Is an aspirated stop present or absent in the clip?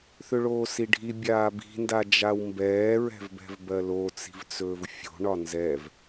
absent